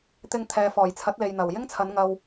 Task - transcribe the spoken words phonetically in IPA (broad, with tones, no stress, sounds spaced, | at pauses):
t̪ ɪ˧ ŋ t̪ʰ ɛː˨ f ɔː˨˩ j t͡sʰ ɐ˨˥ t̚ l e˨ j n̪ ɐ˨˩ w j ɪ˥ ŋ t͡sʰ ɐ˨˧ n ŋ ɐ˧ w